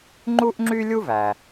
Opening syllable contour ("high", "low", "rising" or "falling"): high